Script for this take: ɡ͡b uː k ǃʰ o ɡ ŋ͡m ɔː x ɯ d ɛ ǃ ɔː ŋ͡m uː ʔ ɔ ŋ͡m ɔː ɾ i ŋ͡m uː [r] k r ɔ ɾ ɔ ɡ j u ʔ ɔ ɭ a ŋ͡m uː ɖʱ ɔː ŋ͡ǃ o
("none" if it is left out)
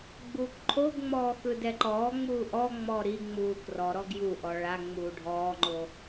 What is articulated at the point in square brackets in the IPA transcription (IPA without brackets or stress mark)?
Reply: none